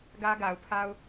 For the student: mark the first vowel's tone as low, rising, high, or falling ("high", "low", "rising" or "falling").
high